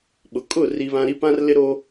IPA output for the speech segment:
ɓ ʊ˨˦ kʼ ʊ˦˨ r i˦ β ã˦ ɾ i˦ p ã˦ r l ɪ˦ ɾ o˦

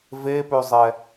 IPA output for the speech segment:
v e p ø zˤ ɛ

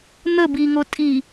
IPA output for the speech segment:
n̪ ə b i ŋ o tʼ i

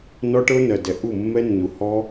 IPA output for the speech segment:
n ɔ˦ ʈ ɤ˦ n ɜ˨ d ɛ˨ ʔ u˦˨ mː ɛ˦ nː u˨ h ɔ˦

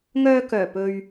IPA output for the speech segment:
ŋ œː˧ k œː˨˩ p ɵ˨ ɥ

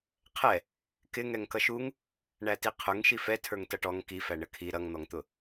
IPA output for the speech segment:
qʰ ɛ | k ɪ ŋ ɛ ŋ k ʌ ʃ u ŋ | ɳ æ t i qʰ ʊ ŋ ʃ i f ɛ tʰ ə˞ ŋ t ʌ ʈ ɔ ŋ k i f æ ɳ ə kʰ i ɾ ʌ ŋ n̪ ɔ ŋ t̪ ʊ

